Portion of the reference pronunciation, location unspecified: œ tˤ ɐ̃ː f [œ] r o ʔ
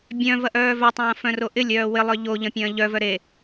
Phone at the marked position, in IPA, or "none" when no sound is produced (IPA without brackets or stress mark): œ̃